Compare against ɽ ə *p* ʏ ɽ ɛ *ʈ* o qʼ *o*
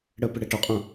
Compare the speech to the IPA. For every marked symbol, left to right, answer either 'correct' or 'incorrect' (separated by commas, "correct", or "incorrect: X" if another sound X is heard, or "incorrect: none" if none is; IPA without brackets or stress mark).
correct, correct, incorrect: õ